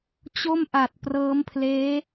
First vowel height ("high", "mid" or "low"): mid